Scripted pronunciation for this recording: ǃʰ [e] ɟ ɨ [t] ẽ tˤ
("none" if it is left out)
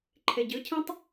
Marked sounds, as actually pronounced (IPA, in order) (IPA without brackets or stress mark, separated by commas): e, cʰ